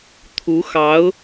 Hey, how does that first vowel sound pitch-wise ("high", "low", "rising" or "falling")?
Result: rising